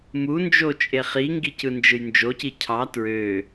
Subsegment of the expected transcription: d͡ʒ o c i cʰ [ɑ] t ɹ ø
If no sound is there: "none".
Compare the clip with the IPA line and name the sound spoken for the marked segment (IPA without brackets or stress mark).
ɑ